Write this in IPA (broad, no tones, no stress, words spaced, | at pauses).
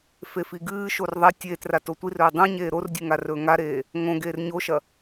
fefiɡɨːʃor ðˤɐ tʲeːtra totʷirɵː dˤũɲeː ɾordʲʉ ŋarɵːŋaɾeː | ŋõ ɡeːrɲoʃɐ